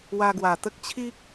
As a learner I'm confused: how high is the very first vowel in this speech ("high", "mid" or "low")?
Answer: low